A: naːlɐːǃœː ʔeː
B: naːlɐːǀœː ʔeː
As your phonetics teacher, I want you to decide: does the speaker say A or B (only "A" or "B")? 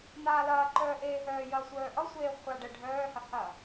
A